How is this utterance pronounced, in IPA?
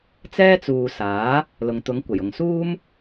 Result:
t͡sɛː˥t͡suː˨saː˨˥ | lʊ˨ŋt̪ʊ˨˧ŋkʷɐ˨˩jʊ˨ŋ suː˥m

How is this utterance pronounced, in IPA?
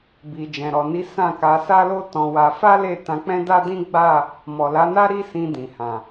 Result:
bi˨ d͡ʒɛ̃˨ɾɔ˨ni˨˦ sã˦˨ka˧ sa˦lo˦ tɔ̃˧wa˧ fa˦le˦˨ tã˧k͡pɛ̃˦da˦dĩ˦ ɡ͡ba˦˨ | mɔ˨la˨˦na˦ ɾi˦sĩ˧ dĩ˨hã˨

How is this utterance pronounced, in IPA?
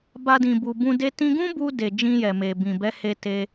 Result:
ba˧dĩ˨ bu˨bũ˧de˦ tĩ˧ɡũ˦bu˧ de˨ d͡ʒĩ˧jɛ˨me˨ bĩ˨bɛ˨˦he˧ te˧

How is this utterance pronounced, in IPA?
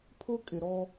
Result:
pʰʊ˦ kʼɪ˨ɾɔ˦

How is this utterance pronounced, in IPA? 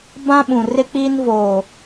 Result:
bã˦ɓũ˨rɪ˦k͡piː˦n voː˦˨

